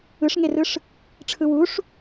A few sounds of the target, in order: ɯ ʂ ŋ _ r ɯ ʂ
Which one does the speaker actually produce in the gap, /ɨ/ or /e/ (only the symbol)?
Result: e